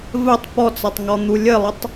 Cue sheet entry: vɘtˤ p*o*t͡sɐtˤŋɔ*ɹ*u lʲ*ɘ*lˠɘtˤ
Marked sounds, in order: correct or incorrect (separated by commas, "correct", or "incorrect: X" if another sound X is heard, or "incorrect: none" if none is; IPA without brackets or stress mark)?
incorrect: ɔ, incorrect: n̪, correct